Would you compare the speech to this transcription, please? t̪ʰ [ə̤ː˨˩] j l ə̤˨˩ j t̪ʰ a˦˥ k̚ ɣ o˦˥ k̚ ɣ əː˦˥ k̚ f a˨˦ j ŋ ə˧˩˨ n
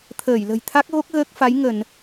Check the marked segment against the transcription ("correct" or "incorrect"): incorrect